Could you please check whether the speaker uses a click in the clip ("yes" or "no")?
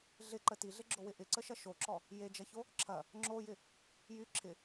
yes